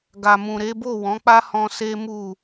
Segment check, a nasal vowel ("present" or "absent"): present